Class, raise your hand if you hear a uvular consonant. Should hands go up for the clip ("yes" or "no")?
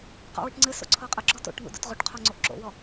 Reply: yes